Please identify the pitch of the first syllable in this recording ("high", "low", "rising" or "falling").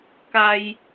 high